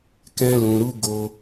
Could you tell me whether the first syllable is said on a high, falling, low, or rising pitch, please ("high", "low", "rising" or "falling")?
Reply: high